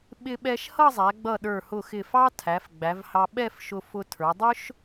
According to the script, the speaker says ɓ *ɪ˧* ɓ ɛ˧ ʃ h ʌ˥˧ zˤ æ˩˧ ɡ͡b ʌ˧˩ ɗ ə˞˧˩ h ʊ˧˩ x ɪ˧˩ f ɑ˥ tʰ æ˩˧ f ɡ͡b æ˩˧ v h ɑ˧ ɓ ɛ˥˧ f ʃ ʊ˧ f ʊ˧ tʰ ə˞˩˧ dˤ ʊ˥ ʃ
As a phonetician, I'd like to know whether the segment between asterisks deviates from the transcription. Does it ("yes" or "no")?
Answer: no